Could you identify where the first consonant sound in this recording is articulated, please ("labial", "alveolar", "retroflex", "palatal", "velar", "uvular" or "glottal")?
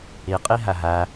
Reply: uvular